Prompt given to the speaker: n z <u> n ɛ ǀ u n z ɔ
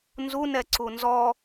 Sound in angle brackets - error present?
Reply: no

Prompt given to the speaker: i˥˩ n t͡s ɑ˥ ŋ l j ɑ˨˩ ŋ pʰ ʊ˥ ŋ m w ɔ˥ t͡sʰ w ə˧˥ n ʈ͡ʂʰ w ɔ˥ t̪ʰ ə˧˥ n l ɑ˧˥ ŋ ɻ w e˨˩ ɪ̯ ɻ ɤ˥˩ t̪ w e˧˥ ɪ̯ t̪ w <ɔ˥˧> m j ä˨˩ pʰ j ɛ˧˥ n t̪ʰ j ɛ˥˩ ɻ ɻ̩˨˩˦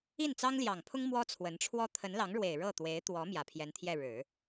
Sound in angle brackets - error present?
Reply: yes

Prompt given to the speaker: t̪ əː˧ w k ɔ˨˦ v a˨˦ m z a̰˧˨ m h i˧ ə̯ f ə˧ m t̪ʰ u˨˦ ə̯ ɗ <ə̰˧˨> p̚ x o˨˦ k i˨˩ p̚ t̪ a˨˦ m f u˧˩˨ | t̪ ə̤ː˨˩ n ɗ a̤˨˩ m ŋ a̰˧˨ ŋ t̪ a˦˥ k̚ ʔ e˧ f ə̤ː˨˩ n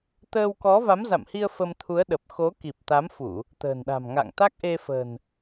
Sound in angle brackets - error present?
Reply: yes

